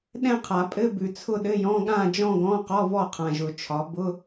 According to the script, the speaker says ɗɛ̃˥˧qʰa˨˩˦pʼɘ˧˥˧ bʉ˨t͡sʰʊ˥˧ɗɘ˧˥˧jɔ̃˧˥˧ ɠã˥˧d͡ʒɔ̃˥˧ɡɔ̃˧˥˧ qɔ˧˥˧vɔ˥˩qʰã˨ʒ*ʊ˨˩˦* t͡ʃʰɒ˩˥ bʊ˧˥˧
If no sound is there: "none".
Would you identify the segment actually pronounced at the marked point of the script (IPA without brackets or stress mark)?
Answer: ʊ˨˩˦